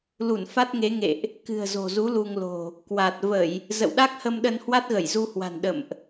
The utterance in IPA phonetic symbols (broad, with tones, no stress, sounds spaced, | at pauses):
l u˧˩ n f a˦˥ t̚ ŋ e˨˦ ŋ ḛ˧˨ ʔ | k ɨ̤˨˩ ə̯ z o̤˨˩ z u˨˦ l u˧ ŋ l o̤˨˩ | k w a˨˩ t̚ v ə˧˩˨ j | z ə̰˧˨ w ɗ a˦˥ k̚ h ə˧ m ɗ ə˧ n h w a˦˥ t̚ ɣ ə˧˩ j z u˧ h w a̤˨˩ n ɗ ə̰˧˨ m ʔ